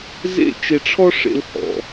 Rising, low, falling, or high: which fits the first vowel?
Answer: high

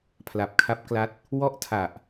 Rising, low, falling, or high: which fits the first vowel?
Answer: low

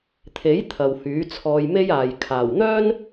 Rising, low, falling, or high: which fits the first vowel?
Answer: rising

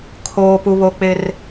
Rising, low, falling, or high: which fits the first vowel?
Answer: low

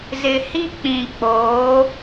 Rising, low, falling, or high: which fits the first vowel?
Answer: low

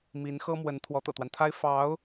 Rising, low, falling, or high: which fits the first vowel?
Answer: rising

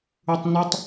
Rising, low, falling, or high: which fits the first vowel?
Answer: low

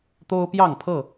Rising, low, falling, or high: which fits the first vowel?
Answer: high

